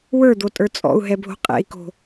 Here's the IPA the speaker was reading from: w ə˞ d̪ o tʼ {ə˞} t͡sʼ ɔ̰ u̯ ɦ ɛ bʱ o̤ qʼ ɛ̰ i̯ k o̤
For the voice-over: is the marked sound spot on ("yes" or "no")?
yes